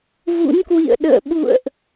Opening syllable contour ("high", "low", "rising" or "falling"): rising